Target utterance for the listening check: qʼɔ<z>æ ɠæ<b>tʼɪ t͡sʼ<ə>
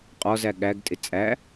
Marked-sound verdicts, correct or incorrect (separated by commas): correct, incorrect, incorrect